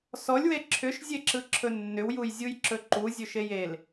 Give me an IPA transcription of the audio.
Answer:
s ɔ lʲ w e ǁʰ ʏ ʃ zʲ e ǁ ɯ ǁʰ ɵ nː ʏ w j u j zʲ u j ǁ ɵ ǃ u zʲ ɵ ʃ e j e l

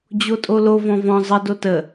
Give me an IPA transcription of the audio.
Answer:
d͡ʑ o tʼ o l o v ɔ̃ v ɔ̃ zˤ ə d o t ə

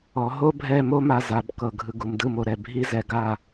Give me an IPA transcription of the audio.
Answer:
ɔ˩˧ ɦ o˥ bʱ ɛ˥˧ m o˥ m a˧ z a˩˧ b k ɤ˧˩ ɡʱ ɯ˧ ɡ u˩˧ m d ɯ˥˧ m o˧ ɾ ɛ˧ bʱ i˥ z ɛ˧ ɡ a˥˧

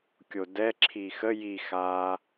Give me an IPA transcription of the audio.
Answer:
kʲ o d ɛ ǁʰ i x ə j i x aː

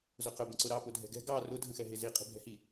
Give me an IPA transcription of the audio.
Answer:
z ʊ q ʊ b ə̃ ǀ ʊ ɾ ɑ p ʊ dʱ ɛ̤ ɡ ɛ̤ ɡ ɑ r ʊ dʱ ə̃ x ɛ ɦ ɪ z i qʼ i̤ bʱ ɛ̤ h i

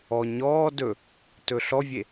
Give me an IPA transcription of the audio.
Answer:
ɔ ɲ ɔː d ɵ | t ɵ ɬ ɔ vʲ e

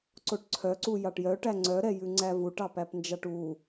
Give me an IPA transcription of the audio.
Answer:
ǀ o ʈ ǀʰ œ ǀ u j ɑ ʈ j œ ʈ æ ŋ͡ǀ œ ɾ ɛ j ʉ ŋ͡ǀ æ v u ʈ ɑ p æ p n d͡ʒ ɑ ʈ u

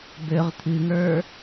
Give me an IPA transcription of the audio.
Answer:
b ø ʁ t̪ʰ ɨ ŋ ə˞

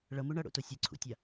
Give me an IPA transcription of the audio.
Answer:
ɭ ʌ m u ɳ ʌ ɽ o̰ t o sʲ ɯ ǀʰ ṵ tʲ a

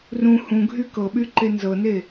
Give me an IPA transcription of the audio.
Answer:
r ũ h ũ ɡʱ y k ɤ ɓ y ǃ e n z ɤ n e

